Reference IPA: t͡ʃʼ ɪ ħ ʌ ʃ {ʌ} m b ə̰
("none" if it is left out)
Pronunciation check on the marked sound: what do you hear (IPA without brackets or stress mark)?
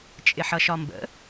ɒ